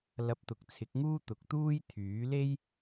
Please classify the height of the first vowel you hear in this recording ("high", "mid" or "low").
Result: low